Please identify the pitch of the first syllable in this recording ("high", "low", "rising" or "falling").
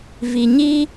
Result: low